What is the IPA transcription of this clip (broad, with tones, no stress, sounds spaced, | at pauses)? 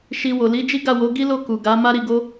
ʃ i˧ w o˨ l i˨˦ d͡ʒ i˦ ɡ a˦˨ w o˨˦ ɡ i˦ l o˦˨ k u˨ ɡ a˨˦ m a˦ ɾ i˧ ɡ o˦